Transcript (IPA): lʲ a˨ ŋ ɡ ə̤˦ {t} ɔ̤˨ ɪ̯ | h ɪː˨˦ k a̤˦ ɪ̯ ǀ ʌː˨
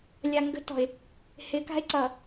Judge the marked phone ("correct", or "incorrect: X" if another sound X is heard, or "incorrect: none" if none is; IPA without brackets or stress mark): correct